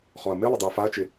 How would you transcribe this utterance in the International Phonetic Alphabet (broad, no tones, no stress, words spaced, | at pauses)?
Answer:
χɔɐ̯mɪlˠɪ dˤuɐ̯faɐ̯t͡ʃɪ